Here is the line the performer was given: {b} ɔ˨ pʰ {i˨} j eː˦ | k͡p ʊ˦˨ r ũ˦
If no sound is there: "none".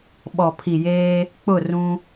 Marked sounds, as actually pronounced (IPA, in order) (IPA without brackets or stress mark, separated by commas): ɓ, i˨